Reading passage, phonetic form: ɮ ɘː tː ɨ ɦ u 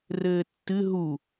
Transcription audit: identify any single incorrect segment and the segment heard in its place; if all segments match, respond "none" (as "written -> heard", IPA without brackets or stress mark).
ɮ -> r